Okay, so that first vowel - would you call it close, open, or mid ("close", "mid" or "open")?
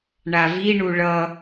open